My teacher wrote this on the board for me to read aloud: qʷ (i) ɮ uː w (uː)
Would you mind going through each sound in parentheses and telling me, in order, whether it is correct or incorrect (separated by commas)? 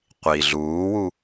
correct, incorrect